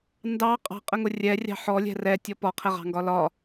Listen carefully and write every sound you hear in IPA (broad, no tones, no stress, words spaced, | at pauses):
ndɑ qʼɑ̤qʼəŋʊ rʲɛrʲɑ̤ ħɔlʲɛ̤ rɛtʲɔ pɒqʰɛʁɑ̤ŋɡɒ lɒ